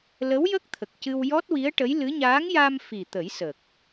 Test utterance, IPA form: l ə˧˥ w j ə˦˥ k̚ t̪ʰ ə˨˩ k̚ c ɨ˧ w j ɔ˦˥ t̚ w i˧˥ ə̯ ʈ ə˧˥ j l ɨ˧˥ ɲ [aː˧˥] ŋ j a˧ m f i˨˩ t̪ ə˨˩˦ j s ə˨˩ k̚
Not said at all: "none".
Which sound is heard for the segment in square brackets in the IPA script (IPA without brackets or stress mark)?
aː˧˥